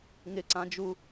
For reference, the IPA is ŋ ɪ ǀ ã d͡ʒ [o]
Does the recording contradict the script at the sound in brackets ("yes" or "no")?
yes